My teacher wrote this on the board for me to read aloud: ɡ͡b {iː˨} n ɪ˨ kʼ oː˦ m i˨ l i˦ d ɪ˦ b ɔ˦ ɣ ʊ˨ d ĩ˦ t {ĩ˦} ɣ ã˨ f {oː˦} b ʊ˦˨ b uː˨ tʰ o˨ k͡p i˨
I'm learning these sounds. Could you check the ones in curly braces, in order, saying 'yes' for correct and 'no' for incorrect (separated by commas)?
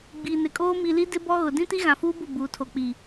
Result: yes, no, no